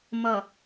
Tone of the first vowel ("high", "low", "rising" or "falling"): low